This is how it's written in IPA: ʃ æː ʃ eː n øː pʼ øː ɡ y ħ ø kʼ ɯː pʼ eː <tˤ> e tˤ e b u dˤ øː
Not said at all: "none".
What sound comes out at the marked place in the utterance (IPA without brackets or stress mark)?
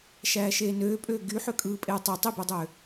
tˤ